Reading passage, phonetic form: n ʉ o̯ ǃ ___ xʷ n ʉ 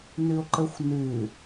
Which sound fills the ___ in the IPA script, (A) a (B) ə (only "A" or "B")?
B